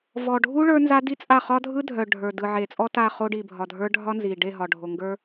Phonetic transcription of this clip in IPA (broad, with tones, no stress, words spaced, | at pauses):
vɔ˨ɖʱu˦ ɭə˞˦nza˦di˦t͡sʼa˦˨ χɒ˦dʱɯ˦ dʱœ˨ ɖʱə˞˨dɯ˨ʕe˨ t͡sʼɔ˦ta˦˨ χo˦ ɖi˨bʱɒ˨dʱə˞˦ ɖʱɒ˦nzi˨ ɖe˦˨ ɦɒ˨ɖʱo˨ŋɡə˞˦